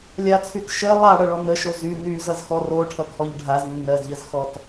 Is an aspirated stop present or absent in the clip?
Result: present